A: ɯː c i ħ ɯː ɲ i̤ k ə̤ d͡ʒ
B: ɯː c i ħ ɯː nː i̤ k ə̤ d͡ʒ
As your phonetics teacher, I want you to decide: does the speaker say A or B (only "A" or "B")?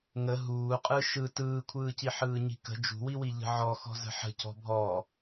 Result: A